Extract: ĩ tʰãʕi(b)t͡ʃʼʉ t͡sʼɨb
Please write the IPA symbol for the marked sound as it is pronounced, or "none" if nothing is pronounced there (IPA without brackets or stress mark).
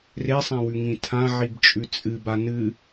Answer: b